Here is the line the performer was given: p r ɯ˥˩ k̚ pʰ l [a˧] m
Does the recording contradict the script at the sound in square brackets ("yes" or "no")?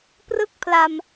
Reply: no